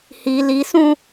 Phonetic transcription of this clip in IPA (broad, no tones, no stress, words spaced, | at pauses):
hi lisũ